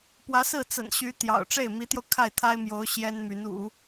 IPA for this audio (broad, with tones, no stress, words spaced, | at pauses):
pwä˧˥sɹ̩˥˩ t͡sə̰˨˩nɕy˧˥ t̪jɑ̰˨˩ʊ̯ ʈ͡ʂe˥˩ɪ̯mi˧˥t̪jo˧ʊ̯ kʰa˥˩ɪ̯t̪ʰa˥ɪ̯mjo˧˥ʊ̯ ɕjɛ˥nmy˧˥n ṵ˨˩˦